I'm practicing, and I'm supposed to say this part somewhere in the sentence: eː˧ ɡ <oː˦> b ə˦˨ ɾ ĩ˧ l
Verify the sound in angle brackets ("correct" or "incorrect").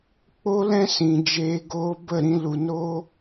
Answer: correct